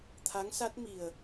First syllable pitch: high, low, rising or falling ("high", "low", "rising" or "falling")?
rising